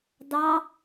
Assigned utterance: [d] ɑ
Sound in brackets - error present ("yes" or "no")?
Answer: no